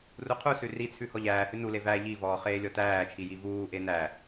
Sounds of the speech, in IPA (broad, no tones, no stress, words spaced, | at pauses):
ruqʰusʉ rit͡sʰʉ hɔʎæːhʉ nule væ ʎivɔː χeːlʲɔtæːt͡ʃʰi jivuːʔe næ